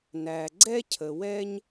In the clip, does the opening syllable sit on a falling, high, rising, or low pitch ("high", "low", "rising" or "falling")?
low